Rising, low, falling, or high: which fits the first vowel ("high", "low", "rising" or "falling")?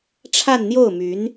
falling